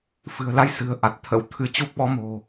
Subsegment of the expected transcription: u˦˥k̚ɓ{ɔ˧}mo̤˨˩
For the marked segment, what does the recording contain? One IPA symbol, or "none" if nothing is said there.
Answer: ɔ˨˦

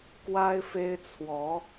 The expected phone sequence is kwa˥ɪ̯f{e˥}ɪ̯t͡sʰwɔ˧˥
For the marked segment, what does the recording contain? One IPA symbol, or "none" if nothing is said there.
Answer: e˥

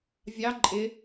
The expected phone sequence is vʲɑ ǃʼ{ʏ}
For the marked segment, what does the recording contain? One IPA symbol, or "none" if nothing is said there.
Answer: ɪ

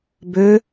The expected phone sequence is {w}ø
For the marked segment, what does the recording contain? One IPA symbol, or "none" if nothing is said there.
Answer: b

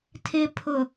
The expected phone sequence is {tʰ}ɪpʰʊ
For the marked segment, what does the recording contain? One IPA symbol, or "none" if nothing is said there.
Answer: tʰ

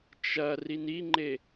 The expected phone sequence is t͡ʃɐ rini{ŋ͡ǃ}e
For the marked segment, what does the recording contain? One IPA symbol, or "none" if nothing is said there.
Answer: ŋ͡ǃ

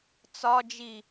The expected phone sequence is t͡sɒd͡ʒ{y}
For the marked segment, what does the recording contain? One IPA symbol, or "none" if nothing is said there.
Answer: i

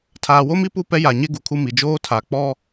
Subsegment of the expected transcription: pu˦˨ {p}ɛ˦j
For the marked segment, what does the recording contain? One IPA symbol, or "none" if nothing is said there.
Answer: p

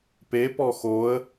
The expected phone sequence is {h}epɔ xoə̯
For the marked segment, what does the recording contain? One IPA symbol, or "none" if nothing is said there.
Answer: p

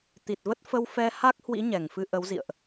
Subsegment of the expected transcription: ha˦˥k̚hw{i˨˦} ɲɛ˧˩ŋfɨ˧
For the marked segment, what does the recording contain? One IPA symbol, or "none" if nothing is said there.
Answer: ḭ˧˥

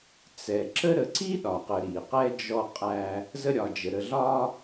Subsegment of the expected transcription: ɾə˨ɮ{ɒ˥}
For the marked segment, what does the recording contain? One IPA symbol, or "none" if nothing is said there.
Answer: ɒ˦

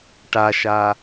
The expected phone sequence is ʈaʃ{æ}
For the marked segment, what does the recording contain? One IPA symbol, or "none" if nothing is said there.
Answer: a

